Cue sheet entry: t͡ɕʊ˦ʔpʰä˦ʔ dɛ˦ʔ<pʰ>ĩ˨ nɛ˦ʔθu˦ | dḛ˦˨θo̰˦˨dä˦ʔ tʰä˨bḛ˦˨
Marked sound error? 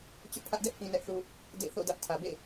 yes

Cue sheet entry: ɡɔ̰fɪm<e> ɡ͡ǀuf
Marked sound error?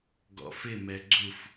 yes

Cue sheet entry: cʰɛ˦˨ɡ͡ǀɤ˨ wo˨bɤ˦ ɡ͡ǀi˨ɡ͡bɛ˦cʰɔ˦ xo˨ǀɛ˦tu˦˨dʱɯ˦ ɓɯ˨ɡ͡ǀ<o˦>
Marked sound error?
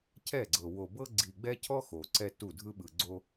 no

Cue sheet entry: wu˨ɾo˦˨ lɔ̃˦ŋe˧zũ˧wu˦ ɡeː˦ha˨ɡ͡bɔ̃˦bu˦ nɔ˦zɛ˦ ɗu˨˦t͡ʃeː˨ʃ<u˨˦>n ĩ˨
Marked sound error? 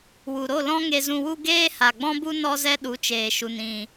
yes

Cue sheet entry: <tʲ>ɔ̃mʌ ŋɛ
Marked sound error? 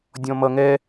yes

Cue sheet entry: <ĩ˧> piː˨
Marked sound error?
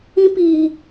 no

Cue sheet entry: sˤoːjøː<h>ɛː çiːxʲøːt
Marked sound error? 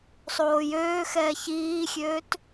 yes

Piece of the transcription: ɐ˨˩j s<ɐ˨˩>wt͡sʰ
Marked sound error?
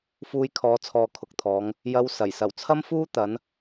no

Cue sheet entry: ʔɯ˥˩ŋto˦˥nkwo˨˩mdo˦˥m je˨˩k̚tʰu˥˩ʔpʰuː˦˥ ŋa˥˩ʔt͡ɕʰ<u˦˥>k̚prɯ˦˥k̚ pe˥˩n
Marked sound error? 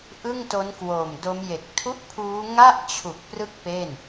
yes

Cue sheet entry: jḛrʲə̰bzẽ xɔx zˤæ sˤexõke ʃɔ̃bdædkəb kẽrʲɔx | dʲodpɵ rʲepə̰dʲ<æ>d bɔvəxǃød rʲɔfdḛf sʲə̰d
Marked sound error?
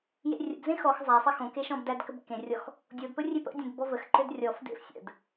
yes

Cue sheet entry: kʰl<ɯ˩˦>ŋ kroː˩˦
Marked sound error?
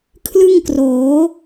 yes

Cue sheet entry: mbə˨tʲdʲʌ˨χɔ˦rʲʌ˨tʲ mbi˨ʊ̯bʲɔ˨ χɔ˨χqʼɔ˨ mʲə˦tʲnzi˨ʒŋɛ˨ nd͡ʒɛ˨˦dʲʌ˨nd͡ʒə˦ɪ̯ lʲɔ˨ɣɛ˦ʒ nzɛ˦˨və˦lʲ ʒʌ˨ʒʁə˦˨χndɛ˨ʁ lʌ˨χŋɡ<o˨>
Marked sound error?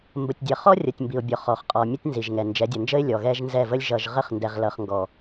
yes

